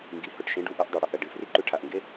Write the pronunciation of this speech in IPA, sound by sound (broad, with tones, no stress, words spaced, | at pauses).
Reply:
ŋɡi˩˧˩hɵ˩˧˩ʈʃẽ˧˥ɖu˧˥ ʔo˧˥ʔdˤe˩˧˩ɽɵ˩˧˩ʔɾɐ˩˧˩ ɖɨ˩˧˩fri˥ǃʉ˧˥ʈʰa˩˧˩ʔ ŋɡe˥